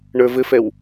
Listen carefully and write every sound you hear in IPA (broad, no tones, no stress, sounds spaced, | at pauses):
ɳ ə˞ v ɘ f ɛ w